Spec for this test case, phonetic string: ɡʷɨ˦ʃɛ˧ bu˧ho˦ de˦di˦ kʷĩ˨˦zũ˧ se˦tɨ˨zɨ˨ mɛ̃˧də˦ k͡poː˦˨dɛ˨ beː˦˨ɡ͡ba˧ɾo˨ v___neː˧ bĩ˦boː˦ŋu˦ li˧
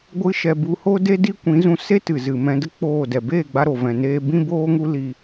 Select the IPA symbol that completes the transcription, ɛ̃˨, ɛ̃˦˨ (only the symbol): ɛ̃˨